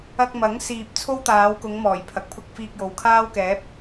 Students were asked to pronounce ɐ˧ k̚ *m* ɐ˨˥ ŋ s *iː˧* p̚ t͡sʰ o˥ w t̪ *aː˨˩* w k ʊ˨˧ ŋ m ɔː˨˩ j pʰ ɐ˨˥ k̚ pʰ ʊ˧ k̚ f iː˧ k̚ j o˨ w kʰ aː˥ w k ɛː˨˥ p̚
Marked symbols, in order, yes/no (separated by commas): yes, yes, no